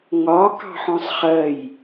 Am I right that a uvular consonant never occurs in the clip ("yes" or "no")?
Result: no